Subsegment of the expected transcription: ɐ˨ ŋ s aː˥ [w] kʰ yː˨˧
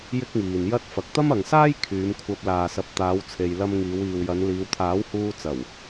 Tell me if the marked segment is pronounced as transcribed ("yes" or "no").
no